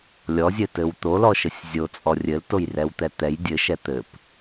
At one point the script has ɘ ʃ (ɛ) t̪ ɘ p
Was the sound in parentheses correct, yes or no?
yes